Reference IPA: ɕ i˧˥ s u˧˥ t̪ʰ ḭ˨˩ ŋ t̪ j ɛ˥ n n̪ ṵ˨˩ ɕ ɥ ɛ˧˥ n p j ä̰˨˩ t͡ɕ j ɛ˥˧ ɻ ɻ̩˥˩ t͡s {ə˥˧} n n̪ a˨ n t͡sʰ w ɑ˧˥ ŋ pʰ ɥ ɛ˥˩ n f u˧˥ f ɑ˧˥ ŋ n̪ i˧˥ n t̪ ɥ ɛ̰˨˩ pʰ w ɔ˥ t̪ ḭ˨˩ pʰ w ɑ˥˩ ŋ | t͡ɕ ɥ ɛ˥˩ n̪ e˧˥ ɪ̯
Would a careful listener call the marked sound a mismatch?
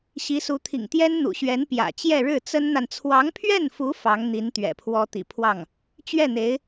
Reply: yes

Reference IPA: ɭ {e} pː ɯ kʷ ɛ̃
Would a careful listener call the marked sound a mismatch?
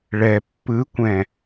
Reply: yes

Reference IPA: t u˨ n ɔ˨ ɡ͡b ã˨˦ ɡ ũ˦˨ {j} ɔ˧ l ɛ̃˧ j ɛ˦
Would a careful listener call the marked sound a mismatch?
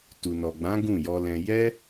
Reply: no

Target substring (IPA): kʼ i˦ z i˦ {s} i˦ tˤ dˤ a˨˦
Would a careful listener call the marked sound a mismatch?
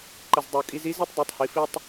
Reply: yes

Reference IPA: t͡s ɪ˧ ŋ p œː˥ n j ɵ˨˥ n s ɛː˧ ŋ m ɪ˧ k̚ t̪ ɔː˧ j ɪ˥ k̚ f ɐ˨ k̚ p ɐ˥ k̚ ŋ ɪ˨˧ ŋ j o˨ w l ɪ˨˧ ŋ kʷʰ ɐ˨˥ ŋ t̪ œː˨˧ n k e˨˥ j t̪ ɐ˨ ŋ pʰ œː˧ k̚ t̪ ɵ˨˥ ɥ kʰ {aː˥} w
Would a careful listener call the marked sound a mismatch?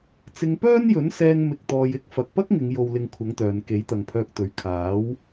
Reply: yes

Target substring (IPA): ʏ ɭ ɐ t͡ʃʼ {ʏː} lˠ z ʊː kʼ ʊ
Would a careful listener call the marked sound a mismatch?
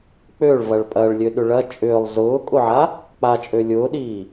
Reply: no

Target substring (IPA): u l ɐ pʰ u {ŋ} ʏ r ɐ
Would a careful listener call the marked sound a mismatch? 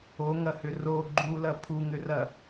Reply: no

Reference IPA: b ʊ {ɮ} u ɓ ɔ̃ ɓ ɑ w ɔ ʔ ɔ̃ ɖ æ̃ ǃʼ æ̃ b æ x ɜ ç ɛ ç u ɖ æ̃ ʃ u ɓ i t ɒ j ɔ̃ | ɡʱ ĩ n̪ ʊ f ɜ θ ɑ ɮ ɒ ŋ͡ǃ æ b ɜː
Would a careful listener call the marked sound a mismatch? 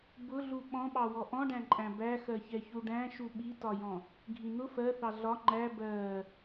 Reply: no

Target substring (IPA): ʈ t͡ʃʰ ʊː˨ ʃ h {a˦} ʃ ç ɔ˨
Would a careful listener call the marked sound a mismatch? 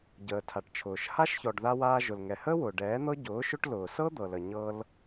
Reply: no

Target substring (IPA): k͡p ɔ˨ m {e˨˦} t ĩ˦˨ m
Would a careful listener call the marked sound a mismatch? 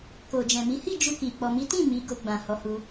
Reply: yes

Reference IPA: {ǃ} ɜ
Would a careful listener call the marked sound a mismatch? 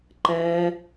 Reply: no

